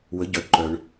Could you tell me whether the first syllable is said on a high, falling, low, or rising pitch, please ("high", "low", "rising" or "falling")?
rising